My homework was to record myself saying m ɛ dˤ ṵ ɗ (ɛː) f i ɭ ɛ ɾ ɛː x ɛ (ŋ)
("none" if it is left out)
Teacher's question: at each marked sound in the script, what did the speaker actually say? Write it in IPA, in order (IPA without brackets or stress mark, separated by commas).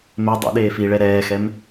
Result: eː, m